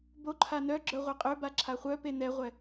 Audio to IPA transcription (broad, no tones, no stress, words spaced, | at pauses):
boǃʰa nœ ɡ͡ǁœʁʷeqʼøba ǁʰaχʷœpe nɛʁʷɛ